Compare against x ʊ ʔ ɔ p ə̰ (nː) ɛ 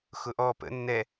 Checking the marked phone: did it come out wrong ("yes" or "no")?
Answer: no